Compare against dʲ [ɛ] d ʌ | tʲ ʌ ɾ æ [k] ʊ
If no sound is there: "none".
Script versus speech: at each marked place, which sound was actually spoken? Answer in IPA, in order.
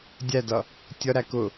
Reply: æ, k

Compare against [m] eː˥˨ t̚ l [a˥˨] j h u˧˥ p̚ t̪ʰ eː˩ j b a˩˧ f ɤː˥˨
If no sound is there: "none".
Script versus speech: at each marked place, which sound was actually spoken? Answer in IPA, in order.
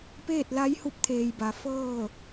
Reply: p, a˧˥

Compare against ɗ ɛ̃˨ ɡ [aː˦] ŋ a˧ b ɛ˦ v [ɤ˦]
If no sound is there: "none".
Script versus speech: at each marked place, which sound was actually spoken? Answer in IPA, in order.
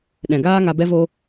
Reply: aː˦, o˦

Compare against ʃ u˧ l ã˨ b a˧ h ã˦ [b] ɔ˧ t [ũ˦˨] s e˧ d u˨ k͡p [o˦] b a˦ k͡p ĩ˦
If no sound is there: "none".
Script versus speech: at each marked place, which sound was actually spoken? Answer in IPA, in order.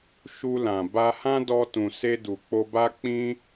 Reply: d, ũ˨, o˧

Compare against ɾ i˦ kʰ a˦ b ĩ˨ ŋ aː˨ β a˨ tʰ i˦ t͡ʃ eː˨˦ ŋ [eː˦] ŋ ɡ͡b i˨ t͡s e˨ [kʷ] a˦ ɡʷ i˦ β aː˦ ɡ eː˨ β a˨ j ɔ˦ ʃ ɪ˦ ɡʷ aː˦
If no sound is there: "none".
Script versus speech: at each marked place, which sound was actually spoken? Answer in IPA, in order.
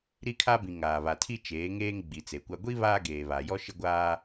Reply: eː˦, kʷ

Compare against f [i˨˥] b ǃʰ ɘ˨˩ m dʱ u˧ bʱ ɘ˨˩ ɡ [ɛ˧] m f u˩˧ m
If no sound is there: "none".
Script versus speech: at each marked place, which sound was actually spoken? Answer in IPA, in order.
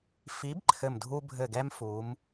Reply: i˨˥, ɛ˧

